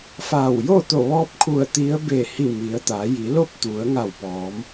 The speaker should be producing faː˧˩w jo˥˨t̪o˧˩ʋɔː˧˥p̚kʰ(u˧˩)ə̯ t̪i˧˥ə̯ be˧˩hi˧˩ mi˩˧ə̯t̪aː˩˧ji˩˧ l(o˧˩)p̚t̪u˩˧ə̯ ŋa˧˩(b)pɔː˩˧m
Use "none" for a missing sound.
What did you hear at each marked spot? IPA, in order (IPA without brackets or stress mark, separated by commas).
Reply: u˧˩, o˥˨, w